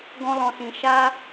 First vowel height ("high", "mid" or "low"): mid